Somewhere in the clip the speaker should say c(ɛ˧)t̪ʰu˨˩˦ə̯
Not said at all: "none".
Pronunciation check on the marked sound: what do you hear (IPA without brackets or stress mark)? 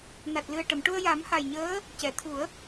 ɛ˨˩˨